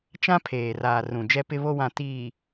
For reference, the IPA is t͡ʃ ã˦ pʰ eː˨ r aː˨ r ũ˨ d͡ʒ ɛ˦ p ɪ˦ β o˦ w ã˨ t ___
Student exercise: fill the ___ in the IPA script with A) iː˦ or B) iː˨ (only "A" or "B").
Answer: B